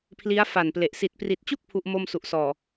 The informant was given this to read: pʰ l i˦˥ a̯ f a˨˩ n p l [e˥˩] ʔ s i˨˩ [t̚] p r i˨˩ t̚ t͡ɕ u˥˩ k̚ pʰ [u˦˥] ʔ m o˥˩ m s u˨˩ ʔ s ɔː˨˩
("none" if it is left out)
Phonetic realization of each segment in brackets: e˨˩, t̚, u˦˥

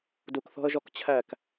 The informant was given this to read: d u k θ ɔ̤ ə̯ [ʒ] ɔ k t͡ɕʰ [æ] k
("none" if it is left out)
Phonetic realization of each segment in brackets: ʒ, æ

